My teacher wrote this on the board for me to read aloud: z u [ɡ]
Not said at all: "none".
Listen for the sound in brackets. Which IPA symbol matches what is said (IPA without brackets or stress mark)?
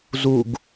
ɡ